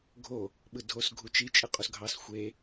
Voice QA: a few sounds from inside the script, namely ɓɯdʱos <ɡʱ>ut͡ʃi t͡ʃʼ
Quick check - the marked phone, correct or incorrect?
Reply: correct